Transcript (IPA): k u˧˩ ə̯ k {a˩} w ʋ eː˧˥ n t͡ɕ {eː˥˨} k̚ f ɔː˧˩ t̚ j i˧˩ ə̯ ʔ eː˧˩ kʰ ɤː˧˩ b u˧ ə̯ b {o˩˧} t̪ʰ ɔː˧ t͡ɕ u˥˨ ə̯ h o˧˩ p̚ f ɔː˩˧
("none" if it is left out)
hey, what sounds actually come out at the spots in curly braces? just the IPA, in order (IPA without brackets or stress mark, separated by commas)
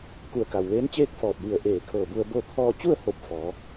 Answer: a˩, eː˥˨, o˥˨